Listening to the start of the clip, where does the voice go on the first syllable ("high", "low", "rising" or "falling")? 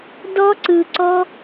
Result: high